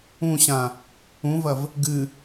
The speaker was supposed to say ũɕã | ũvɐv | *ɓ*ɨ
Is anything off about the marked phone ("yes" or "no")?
yes